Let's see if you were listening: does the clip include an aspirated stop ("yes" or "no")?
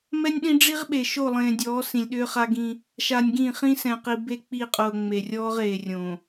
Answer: no